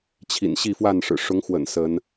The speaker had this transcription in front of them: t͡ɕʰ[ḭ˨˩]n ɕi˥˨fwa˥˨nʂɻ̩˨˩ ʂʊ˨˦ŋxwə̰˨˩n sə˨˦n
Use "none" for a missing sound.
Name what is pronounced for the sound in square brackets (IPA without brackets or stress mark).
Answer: ḭ˨˩